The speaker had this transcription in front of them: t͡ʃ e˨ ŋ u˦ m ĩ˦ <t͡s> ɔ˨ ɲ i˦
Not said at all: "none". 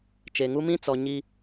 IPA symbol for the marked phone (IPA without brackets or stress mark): t͡s